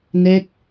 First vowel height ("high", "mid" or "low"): mid